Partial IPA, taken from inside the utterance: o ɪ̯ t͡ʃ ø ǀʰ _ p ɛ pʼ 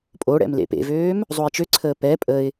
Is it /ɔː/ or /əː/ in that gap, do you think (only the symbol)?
əː